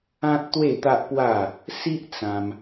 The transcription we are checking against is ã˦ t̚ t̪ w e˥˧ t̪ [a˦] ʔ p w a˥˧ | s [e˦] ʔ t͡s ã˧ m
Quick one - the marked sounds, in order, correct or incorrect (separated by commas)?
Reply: correct, incorrect